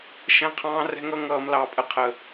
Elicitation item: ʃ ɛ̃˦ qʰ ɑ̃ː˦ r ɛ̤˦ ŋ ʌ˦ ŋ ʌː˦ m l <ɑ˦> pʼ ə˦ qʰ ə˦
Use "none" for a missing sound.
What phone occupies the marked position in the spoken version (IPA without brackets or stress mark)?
ɑ˦